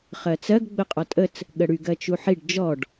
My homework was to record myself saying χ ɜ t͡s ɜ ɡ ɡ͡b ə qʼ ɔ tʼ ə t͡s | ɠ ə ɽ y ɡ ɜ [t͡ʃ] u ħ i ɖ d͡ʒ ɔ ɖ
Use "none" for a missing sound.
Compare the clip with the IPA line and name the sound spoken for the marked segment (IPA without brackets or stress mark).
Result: t͡ʃ